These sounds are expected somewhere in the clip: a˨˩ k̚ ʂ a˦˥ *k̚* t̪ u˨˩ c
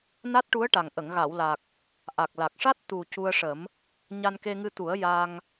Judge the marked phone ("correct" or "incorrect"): incorrect